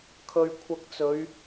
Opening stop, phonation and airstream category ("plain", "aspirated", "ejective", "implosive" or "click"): aspirated